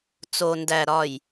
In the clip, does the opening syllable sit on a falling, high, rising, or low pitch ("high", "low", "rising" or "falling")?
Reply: low